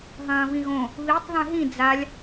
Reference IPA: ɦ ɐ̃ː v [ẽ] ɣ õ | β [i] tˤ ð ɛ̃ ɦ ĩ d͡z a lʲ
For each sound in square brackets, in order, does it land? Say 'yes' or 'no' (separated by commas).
no, yes